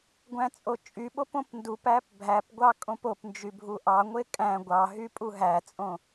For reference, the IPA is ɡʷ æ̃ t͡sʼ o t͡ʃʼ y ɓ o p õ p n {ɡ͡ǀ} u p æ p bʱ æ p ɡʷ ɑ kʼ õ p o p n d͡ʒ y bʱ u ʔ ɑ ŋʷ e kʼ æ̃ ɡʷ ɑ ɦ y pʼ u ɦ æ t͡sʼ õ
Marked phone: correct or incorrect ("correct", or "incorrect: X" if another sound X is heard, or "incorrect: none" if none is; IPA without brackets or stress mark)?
incorrect: d